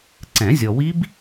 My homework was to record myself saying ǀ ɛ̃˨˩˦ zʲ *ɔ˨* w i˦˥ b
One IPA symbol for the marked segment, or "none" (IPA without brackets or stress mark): ɔ˨